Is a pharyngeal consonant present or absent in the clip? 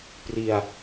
absent